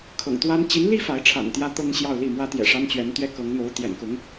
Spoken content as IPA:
kʰɤ̰˨˩ŋt̪wa˥n t͡ɕi˧˥nli˥ fa˧˥ɪ̯ʈ͡ʂʰa̰˨˩nt̪jä˥ t̪ɤ˥ŋɕjɑ˥˧ʊ̯li˥˩mwä˥ t̪jɛ̰˨˩ʂa˥nt͡ɕɥɛ˧˥nt̪ɥɛ˥ kɤ˧˥ŋn̪o˧˥ʊ̯t̪jɛ̰˨˩nkʊ˧˥ŋ

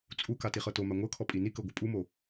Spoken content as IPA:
t͡sʼuka tiχɤtoma ŋʷɤkʰɔ pʼinikɤ ɡʷɯpʼumo

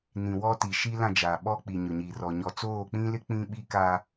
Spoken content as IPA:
nĩ˨wɔ˦ ti˨ ʃi˦lã˦˨d͡ʒaː˨ ɓɔ˦k͡pi˨ ɲʊ˨ɲi˨rɔ˨ ɲɔ˨t͡soː˦˨k͡pĩ˦lɪ˦ k͡pĩ˦ɓi˦ka˦

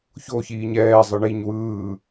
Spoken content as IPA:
çoçiːɲ ɛːzˤɯ ɳiɲ wɯː

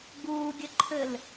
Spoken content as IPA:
ɡuːɡʲɘǃʰɘl

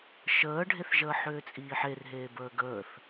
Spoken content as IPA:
ʃəːɖʱeθʒəː ħʏːt͡sʼiːħerɦeː bəːɡəːθ

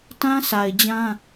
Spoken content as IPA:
tã˦sa˨ɪ̯d͡ʑã˦

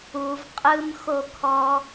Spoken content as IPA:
uv qʼɯmxokʰɔ

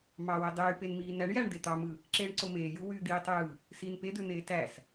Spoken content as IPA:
mɑwe dˤyːpenmiː næɳ jæɳ d̪et̪ɑmɯ | ǁeːɳǀomeːju wyːd̪iːtˤ jɯ | siːnped̪øn̪eː tæs

